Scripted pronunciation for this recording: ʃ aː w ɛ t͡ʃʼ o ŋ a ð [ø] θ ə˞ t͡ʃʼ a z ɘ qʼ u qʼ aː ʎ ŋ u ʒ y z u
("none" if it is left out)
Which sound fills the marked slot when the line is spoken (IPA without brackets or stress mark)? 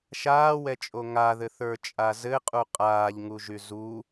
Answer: ɘ